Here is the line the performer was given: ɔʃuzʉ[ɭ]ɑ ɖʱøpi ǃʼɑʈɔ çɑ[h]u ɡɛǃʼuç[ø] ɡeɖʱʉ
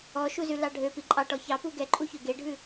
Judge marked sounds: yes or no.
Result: no, no, yes

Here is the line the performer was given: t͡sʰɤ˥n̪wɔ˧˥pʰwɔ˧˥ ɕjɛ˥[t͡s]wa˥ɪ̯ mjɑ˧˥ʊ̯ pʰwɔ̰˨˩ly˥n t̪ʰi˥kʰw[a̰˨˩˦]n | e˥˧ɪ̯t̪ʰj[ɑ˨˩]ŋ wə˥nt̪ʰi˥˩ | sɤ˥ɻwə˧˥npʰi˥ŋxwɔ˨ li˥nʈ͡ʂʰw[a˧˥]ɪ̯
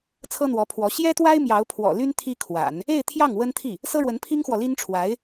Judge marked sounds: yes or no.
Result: no, yes, no, yes

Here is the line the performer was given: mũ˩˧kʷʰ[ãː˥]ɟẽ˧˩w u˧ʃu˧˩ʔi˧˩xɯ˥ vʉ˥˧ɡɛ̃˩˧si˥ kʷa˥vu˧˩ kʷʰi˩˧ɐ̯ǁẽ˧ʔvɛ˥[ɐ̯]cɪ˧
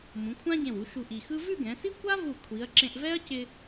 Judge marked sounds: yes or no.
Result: no, yes

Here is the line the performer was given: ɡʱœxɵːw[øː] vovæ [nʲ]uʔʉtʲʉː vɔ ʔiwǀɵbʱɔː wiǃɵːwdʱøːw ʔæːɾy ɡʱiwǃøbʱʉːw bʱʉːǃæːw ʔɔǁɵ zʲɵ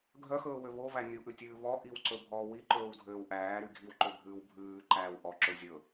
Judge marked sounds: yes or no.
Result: no, yes

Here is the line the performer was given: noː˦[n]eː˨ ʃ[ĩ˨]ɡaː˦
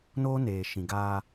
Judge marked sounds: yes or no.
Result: yes, yes

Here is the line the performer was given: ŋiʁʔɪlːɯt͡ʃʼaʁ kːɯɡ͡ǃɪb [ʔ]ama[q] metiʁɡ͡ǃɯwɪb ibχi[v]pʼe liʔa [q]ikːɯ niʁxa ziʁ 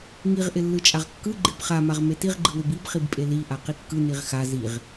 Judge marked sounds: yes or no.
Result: no, no, no, yes

